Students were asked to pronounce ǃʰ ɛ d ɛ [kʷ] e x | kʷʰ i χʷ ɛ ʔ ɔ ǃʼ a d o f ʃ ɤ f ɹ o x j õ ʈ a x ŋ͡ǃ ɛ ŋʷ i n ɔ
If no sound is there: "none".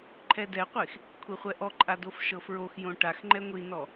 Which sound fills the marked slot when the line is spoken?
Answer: qʷ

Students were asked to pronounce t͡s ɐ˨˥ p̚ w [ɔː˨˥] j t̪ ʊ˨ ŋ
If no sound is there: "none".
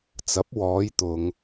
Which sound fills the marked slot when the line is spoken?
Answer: ɔː˨˧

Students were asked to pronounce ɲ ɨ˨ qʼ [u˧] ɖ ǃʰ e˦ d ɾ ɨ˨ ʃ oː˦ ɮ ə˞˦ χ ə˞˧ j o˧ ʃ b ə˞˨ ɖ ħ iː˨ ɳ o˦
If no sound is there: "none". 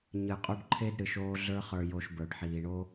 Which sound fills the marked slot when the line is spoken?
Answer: u˧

